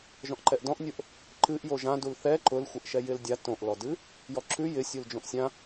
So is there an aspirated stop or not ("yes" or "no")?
no